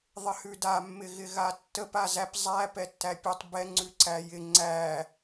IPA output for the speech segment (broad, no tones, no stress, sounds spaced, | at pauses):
ðˤ ɪ h ʉ d a mː ɪ ɣ ɪ ɣ a tː ə p a z æ p zˤ æ p ɛ tː æ pʲ ɛ tˤ b ɛ ŋ͡ǀ ʉ ǀ æ j ɪ ŋ͡ǀ æ